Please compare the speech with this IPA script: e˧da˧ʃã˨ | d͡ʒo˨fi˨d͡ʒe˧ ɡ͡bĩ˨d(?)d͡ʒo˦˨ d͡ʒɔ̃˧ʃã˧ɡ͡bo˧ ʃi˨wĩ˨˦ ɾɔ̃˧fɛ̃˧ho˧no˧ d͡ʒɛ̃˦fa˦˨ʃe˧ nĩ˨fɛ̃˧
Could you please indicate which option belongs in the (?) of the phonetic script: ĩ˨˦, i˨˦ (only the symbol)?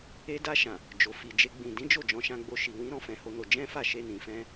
ĩ˨˦